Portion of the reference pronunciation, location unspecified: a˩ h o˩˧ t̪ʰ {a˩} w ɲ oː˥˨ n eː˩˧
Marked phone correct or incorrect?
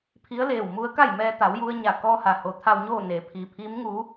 incorrect